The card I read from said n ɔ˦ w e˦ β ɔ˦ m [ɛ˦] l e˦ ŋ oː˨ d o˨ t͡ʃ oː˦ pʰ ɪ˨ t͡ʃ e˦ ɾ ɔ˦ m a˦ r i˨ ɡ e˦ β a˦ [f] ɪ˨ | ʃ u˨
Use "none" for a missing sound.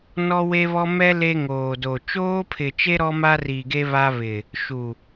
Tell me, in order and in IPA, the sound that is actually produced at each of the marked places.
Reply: ɛ˦, β

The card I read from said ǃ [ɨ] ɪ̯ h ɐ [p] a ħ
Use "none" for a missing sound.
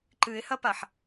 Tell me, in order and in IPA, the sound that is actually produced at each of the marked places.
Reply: ɨ, p

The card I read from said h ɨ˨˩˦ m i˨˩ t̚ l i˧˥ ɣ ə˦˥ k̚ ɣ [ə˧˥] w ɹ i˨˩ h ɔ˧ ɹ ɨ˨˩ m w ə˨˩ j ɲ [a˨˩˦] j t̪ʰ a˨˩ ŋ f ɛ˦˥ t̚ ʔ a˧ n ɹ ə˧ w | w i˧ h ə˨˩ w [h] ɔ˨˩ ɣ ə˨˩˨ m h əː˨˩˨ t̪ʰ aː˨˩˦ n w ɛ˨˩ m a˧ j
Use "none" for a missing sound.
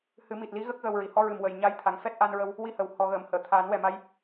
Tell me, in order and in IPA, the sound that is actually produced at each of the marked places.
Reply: ə˧, a˧˥, h

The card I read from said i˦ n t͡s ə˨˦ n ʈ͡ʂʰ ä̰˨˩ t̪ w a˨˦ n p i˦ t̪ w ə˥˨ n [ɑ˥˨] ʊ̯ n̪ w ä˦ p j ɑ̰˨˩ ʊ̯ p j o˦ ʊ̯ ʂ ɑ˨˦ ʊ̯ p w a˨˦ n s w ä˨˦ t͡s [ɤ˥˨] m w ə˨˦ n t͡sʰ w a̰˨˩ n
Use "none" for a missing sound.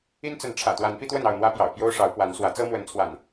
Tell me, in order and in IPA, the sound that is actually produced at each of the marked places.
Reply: ɑ˥˨, ɤ˦

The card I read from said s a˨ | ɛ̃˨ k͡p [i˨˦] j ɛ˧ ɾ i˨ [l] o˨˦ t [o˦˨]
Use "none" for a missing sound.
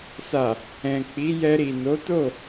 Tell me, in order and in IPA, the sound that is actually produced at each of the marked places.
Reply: i˨˦, n, o˦˨

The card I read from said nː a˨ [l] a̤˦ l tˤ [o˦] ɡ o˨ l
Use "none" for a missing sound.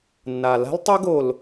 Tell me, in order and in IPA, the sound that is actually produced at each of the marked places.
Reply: l, o˦

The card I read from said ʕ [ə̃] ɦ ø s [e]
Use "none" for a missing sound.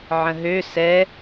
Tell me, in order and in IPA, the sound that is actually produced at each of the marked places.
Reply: ə̃, ɛ

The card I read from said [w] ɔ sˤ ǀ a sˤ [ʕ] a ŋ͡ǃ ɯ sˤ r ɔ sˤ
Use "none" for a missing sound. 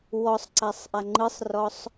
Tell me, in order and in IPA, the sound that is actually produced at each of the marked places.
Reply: w, ʔ

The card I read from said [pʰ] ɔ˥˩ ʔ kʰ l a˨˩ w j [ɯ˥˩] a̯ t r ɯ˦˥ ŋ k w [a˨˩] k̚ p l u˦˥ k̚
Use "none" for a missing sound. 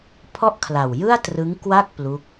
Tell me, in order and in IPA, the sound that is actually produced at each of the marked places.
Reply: pʰ, ɯ˥˩, a˥˩

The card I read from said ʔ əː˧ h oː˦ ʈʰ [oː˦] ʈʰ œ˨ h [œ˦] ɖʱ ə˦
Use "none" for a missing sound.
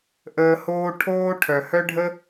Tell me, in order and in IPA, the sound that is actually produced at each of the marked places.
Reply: oː˦, œ˦

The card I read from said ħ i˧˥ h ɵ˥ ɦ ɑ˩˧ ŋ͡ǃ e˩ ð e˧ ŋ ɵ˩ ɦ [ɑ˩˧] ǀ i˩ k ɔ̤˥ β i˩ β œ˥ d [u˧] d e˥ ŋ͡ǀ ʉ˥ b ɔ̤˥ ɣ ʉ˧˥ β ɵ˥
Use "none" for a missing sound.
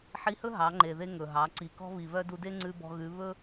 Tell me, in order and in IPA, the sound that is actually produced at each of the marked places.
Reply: ɑ˩˧, u˧

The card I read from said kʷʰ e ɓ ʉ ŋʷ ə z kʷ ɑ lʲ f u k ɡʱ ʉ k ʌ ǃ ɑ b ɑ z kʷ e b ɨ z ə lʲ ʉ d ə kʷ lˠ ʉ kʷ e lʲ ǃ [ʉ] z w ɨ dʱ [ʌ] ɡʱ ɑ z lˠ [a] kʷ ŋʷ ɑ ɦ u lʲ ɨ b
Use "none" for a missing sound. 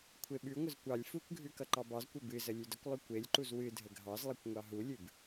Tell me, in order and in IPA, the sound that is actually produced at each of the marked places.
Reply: u, ə, ʌ

